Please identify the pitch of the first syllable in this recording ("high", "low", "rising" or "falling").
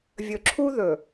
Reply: low